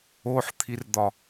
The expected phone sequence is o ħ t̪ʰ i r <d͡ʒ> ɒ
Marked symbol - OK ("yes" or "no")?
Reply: no